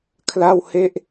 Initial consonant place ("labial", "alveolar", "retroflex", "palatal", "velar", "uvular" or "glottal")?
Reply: velar